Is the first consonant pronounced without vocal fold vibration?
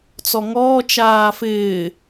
yes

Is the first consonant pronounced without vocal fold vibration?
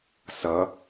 yes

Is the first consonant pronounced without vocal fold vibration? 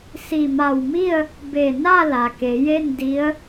yes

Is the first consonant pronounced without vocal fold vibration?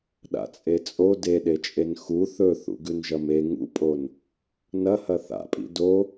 no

